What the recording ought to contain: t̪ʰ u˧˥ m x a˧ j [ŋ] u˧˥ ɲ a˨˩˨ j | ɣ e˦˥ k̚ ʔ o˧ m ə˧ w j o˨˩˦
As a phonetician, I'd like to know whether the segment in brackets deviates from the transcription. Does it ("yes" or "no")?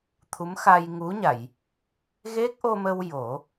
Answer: no